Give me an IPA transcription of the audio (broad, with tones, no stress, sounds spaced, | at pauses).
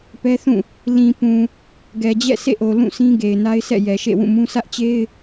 p ɛ˦ θ ũ˦˨ | l ĩ˨ p ũ˨ | ɡ ɛ˨ d͡ʑ ɛ̰˦˨ sʰ ḛ˦˨ ʔ o˨ l ũ˦˨ s ĩ˦ ɡ e˨ ɪ̯ n a˦ ɪ̯ s ɛ̰˦˨ j ɛ˨ ʃ ḛ˦˨ w ũ˦˨ m ũ˦ sʰ ä˦ ʔ t͡ɕ e˦ ɪ̯